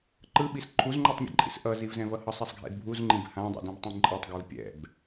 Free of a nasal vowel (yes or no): no